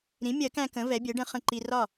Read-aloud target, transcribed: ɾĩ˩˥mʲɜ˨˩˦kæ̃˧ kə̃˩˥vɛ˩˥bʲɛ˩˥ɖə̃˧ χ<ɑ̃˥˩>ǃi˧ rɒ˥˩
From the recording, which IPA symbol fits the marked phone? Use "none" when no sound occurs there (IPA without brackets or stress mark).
ə̃˥˩